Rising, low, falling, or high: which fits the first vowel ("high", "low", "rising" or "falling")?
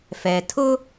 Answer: low